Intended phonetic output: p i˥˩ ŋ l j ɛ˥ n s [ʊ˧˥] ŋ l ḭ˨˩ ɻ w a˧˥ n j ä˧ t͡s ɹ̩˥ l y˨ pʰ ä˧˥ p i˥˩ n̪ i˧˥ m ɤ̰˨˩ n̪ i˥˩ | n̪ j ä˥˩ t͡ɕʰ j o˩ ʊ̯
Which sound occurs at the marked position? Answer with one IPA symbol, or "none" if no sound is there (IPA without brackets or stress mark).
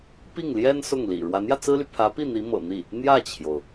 ʊ˥˩